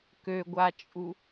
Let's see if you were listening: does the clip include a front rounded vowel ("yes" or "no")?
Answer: yes